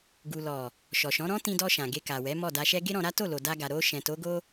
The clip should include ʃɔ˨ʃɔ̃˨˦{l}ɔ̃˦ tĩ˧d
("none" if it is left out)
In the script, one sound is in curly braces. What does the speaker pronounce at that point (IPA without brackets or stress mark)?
ɾ